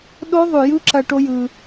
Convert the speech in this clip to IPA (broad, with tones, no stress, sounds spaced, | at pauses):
ɗ o˦˥ ðˤ ʉ˨˩ j ɯ˦˥ ǁ ɐ˧ ʈ o˦˥ j ɯ˧